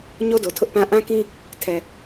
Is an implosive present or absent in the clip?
absent